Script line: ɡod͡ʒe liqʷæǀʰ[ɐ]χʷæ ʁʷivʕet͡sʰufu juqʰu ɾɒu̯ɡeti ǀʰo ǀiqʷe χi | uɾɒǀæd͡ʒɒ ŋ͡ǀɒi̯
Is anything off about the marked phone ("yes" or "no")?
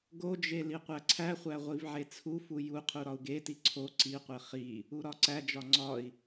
yes